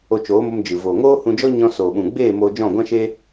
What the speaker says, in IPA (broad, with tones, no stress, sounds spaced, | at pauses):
o˧ t͡ʃ oː˨˦ m o˧ m d͡ʒ ɨ˨ v oː˨ ŋ oː˦ h ũ˧ d͡ʒ ɔ˦ ɲ ɔ̃˧ s oː˨ ɓ ũ˨ ɡ͡b eː˦˨ m oː˧ d͡ʒ ɔ̃˦˨ ɡʷ ã˦ ʃ e˦